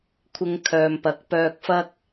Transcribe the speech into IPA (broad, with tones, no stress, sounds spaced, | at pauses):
kʷʰ ɪ˧ ŋ kʰ œː˨ m p ɐ˨˥ k̚ p œː˧ k̚ f ɐ˥ k̚